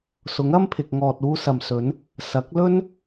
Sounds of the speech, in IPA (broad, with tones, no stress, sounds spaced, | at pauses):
s ʊ˨˥ ŋ ɐ˥ m pʰ ɪ˨ k̚ ŋ ɔː˨ t̚ uː˧ s ɐ˨ m s ɵ˨˧ n | s ɐ˨˥ k̚ l ɵ˥ n